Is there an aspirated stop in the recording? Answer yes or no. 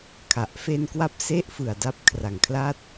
yes